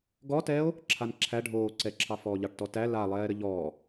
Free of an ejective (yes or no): yes